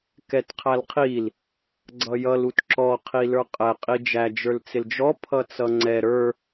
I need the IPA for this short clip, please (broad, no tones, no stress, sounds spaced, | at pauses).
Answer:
k ɛ t qʰ æ l qʰ i l | ɡ͡ǀ ʌ j ʌ l u t ǁ ɔ qʰ i l ə˞ qʼ ɛ qʼ i d͡ʒ æ d͡ʒ ə˞ l t͡s ɪ l d͡ʒ ɔ pʰ ʌ t͡s ʌ ŋ͡ǀ ɛ ɾ ə˞